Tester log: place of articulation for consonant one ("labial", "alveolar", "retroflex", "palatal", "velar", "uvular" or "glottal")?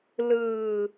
alveolar